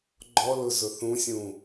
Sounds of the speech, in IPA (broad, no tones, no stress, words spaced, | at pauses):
ɡ͡ǃɔlʊ zʊθũsʲũ